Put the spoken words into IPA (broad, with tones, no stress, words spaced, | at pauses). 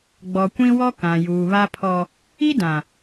ɡ͡bɔ˨kʷĩ˦wɔ˦ kã˨juː˨βa˦pʰɔ˦ | i˦dã˨